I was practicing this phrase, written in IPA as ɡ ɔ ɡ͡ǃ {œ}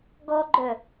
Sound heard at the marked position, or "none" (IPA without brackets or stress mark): œ